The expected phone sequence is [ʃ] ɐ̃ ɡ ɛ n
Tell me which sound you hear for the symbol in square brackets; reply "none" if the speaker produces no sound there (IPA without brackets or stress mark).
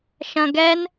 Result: ʃ